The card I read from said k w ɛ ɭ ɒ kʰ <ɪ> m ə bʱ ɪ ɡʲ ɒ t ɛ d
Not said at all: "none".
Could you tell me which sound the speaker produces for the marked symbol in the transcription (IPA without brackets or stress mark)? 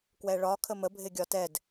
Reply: ə